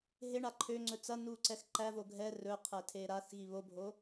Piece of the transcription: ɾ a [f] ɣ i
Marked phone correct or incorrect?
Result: incorrect